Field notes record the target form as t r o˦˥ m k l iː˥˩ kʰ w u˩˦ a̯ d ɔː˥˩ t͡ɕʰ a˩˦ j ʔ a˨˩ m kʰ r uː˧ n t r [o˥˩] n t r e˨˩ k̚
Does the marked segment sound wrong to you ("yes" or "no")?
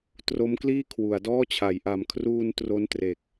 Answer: no